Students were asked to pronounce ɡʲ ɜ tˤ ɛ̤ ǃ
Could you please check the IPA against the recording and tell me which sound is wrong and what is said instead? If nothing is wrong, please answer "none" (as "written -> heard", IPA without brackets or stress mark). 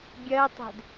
ǃ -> d